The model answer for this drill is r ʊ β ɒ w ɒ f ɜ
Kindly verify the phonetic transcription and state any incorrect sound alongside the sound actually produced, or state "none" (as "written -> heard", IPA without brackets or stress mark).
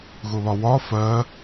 r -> ɣ